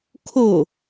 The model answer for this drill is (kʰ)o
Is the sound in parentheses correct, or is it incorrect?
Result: correct